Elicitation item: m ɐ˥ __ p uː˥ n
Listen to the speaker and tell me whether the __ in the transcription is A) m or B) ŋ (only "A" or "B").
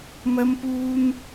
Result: A